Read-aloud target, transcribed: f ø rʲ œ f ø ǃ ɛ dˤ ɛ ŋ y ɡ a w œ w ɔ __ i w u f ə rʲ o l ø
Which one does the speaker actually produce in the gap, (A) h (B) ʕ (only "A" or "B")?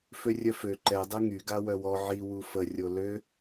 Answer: B